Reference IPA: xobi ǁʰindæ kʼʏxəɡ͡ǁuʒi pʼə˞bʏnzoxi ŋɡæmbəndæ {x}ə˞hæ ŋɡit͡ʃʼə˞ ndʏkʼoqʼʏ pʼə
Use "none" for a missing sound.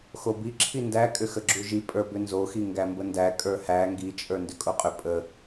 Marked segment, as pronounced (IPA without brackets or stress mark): kʼ